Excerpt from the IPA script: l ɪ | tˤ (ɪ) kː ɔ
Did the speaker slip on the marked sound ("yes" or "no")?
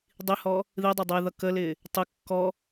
no